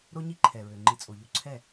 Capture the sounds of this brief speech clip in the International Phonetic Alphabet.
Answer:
ɾ o˦ ɲ i˦ ǃʰ ɛ˨ ɹ ø˨ ŋ͡ǃ i˧ t͡sʼ o˨ ʎ u˧ ǀʰ ɛ˦˨

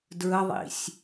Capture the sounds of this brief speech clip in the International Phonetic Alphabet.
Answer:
d ɹ ə ðˤ ḭ sʲ

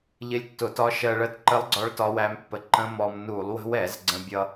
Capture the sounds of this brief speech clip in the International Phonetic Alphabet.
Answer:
ʎ ɪ˦˥ lʲ tː ʊ˧˩˧ t ɒ˦˥ ʃ ɜ˧ ɭ ɜ˦˥ t ǃ ə˦˥ lˠ ɡ͡ǀ ɒ˦˥ ɭ t ɒ˦˥ w æ˦˥ m pː ə˧ ǃ ə̃˦˥ m ɔ˧ m n u˧˩˧ lˠ w ə̤˦˥ w ɛ˧˩˧ z ɡ͡ǀ ə̃˧ bʲ ʌ˧

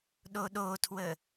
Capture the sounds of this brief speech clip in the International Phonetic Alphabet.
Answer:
ɗ o ɗ o tʰ w ə

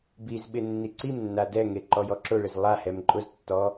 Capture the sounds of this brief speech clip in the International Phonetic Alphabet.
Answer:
b i z ɓ ɪ nː i ǀ i m nː a d ɛ ŋ e ǃ ɔ j ɔ ǁ ʊ ɭ ɪ z lˠ a h ɛ m ǃʼ ʊ z tː ɔ

